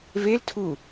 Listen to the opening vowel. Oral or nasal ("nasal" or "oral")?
oral